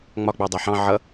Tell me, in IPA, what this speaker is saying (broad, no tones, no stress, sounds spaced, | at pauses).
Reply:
ŋ͡m ɒ ɡ͡b ɑ dˤ æ ħ ɑ̃ ʕ ʌ